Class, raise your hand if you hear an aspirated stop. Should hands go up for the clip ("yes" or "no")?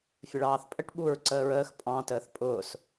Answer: no